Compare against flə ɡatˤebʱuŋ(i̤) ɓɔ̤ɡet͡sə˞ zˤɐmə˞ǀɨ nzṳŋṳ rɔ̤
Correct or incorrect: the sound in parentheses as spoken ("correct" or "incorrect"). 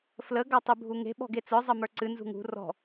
incorrect